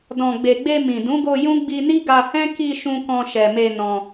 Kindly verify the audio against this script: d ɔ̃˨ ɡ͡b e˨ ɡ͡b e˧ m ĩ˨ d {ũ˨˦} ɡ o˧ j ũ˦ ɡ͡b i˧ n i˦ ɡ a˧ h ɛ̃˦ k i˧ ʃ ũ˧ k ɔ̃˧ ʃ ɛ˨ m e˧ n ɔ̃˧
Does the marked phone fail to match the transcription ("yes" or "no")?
no